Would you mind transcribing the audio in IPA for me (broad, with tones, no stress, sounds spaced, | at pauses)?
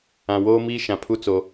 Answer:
ã˨ w oː˦ m iː˦ ʃ ã˨ pʰ u˦ t͡s o˨